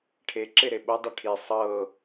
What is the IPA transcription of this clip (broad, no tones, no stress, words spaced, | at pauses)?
ʈʰeǁe ɾeɓodˤɯ ʈʰi sˤɤ